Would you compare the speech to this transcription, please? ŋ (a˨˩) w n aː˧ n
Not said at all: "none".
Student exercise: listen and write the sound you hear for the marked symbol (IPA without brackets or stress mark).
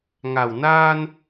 a˨˩